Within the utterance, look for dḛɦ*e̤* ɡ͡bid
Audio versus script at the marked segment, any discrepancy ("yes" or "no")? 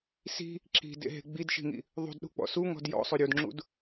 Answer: no